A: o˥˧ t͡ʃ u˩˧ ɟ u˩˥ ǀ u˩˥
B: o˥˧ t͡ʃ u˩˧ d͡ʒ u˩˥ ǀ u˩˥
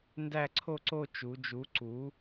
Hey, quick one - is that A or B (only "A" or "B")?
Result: B